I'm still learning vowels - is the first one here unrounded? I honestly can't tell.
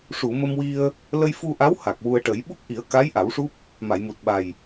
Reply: no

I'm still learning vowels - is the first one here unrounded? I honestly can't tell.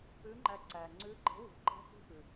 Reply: no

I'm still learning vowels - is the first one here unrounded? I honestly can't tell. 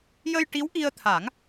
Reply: yes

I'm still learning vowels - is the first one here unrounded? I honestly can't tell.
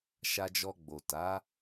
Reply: yes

